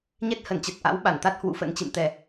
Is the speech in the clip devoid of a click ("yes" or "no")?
yes